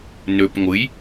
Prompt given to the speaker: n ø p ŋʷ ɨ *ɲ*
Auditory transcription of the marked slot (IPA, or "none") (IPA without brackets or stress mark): j